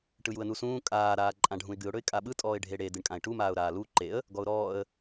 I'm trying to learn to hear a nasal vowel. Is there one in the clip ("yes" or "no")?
yes